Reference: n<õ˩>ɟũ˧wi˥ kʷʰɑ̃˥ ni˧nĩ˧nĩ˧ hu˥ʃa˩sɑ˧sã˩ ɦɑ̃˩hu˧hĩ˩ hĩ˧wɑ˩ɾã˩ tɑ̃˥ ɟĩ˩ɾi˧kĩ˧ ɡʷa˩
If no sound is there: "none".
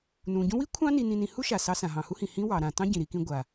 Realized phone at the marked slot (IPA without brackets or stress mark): ũ˩